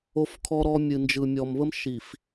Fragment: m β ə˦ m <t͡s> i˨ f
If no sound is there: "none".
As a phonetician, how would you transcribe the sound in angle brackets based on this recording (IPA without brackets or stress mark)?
ʃ